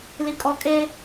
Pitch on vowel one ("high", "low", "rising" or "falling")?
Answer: low